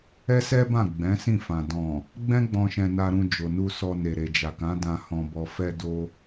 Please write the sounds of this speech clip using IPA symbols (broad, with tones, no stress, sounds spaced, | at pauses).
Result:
ɛ˦ s ɛ˦ b ã˦˨ ɡ͡b ɛ̃˨˦ s ĩ˦˨ f ã˨ d ɔ̃˨ | ɡ͡b ɛ̃˦ ɡ͡b ɔ̃˧ ʃ ɛ̃˧ n a˧ ɾ ũ˧ d͡ʒ o˨ n u˧ s ɔ˧ n e˨ ɾ e˨ d͡ʒ a˨ k ã˨˦ d ã˧ h ɔ̃˧ b ɔ˧ f ɛ˧ d o˧